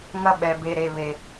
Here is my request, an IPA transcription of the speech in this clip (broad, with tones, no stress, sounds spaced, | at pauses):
ŋ ɐ˦ ɓ ɛ˨ b e˨ ɾ e˨ β e˨